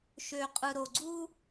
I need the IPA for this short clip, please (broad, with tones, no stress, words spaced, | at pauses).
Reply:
ʃø˨qʼɯ˨ɾo˨ɡ͡ǀu˦